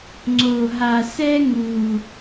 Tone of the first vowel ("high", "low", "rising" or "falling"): low